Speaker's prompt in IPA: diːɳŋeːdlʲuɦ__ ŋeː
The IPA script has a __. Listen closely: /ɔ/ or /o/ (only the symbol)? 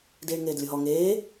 ɔ